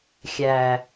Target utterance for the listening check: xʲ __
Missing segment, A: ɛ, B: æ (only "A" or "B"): B